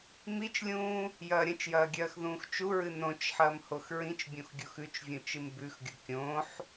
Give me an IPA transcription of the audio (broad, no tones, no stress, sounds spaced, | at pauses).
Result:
m i t͡ʃ lʲ ũː | j ɐː ɾʲ ɐ̃ t͡ʃ j ɐː ɡʲ ɐː x ð ũː x t͡ʃ u ɹ ɨ n õ t͡ʃ ħ ɐː m h o x ɹ ĩ t͡ʃ bʲ õ x ɡʲ o x ʉ t͡ʃ vʲ ũ t͡ʃ ɨ m b ʉ x ɡʲ o kʲ õ ħ